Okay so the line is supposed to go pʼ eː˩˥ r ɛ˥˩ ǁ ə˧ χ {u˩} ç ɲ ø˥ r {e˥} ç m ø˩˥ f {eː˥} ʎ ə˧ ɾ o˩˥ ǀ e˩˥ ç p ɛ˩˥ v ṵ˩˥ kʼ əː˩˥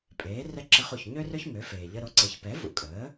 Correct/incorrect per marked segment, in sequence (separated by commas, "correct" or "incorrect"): correct, incorrect, incorrect